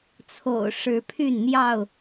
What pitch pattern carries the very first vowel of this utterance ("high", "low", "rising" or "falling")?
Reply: low